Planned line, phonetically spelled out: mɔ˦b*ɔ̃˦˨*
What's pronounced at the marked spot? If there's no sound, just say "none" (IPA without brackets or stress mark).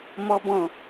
ɔ̃˦˨